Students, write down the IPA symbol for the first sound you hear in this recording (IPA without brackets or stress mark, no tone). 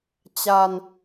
t͡ɕ